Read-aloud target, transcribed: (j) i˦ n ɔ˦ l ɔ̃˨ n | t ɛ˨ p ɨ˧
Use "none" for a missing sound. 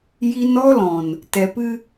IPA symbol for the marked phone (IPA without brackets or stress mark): j